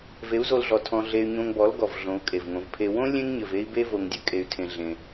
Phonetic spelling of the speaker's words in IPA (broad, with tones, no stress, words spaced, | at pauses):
ve˨˦u̯zo˧lɮɔ˨ tʰɔ̃˧ ɮe˧y̯ ɲõ˧ŋbɔ˨˦lɡɔ˨v ɮõ˨˦u̯kʼe˨vŋõ˨˦vpʰe˦ wõ˦ lʲẽ˦ŋɲɘ˨v e˦i̯be˦ vo˧ŋdʲɘ˦kʼe˧y̯tʰẽ˧ ɮẽ˧